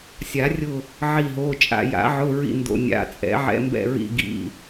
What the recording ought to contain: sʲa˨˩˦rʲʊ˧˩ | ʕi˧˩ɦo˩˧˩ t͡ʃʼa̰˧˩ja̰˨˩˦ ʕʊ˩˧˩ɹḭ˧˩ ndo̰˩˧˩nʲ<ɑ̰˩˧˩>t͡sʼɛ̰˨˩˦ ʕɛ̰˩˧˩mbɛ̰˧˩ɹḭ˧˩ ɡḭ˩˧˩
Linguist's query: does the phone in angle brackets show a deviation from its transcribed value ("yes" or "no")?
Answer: yes